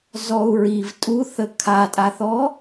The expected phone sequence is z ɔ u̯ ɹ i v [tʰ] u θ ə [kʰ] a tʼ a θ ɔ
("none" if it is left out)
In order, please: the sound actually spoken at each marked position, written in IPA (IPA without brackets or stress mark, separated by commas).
tʼ, kʰ